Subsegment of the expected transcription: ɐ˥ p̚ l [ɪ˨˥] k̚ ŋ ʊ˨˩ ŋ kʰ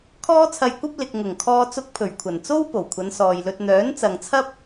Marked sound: incorrect: ɪ˨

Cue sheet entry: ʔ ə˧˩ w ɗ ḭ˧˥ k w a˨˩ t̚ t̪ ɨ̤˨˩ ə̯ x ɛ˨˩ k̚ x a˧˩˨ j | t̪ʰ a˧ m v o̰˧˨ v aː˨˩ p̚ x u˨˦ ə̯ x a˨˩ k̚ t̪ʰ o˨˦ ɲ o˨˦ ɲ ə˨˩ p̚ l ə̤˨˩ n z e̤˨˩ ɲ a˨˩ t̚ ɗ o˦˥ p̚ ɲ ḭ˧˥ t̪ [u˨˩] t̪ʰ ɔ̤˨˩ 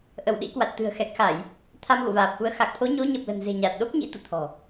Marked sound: incorrect: ṵ˧˨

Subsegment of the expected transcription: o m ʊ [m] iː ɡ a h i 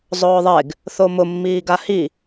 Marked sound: incorrect: mː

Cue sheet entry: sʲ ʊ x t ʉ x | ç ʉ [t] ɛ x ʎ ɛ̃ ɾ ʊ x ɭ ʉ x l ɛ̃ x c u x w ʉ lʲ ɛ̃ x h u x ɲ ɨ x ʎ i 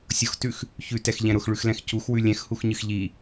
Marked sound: correct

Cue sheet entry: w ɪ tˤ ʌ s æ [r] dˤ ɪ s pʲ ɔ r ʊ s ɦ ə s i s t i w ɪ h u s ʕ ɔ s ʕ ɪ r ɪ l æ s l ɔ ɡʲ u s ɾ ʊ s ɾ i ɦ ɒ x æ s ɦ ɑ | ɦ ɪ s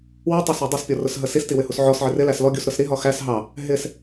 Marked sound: incorrect: none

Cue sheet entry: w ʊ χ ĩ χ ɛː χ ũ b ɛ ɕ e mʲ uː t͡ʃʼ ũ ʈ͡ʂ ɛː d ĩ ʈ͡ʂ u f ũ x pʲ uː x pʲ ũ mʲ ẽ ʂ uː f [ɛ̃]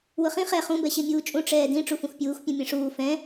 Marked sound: correct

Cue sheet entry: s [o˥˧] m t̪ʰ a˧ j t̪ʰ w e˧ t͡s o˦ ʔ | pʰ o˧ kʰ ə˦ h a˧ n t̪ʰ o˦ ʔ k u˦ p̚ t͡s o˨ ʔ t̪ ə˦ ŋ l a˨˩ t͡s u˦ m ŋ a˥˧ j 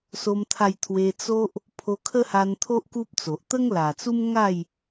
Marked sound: incorrect: o˧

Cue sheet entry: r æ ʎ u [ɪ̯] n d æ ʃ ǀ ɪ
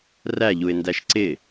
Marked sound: correct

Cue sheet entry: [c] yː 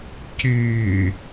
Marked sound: correct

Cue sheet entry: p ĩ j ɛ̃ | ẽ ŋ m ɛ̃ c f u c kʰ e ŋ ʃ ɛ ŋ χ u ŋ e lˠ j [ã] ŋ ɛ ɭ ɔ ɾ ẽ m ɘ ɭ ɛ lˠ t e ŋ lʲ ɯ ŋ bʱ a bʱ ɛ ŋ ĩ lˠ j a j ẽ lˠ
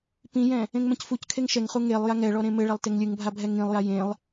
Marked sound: incorrect: a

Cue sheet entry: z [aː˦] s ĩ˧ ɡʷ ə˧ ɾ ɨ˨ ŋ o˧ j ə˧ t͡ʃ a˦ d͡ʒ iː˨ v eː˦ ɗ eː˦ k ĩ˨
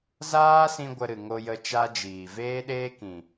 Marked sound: correct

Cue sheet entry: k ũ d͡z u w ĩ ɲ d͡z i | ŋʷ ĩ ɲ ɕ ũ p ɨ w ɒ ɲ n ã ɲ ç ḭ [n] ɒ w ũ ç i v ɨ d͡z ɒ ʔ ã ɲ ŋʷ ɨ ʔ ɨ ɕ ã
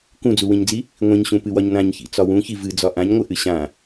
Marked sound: incorrect: t͡s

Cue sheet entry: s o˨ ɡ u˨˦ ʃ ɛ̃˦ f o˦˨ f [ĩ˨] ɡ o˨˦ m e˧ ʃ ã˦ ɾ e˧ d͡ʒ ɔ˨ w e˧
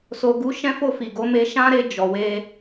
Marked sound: incorrect: i˨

